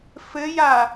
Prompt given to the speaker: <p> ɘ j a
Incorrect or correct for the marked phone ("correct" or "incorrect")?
incorrect